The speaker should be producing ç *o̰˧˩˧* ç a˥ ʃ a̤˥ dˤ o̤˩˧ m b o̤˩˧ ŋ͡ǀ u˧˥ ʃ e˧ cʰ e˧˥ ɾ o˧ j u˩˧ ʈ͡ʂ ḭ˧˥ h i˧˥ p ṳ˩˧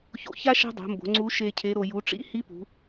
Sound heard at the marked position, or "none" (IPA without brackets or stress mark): o̰˧˩˧